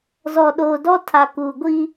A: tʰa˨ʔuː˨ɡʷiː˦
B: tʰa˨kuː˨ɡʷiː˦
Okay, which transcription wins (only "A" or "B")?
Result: B